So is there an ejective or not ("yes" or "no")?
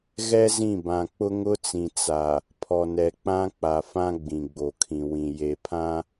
no